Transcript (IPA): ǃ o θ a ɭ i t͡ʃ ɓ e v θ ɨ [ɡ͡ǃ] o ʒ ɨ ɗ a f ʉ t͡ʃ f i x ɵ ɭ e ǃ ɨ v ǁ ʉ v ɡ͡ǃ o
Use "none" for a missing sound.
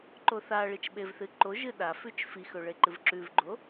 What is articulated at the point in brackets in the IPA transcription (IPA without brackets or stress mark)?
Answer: ǃ